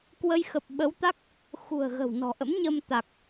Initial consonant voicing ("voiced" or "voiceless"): voiceless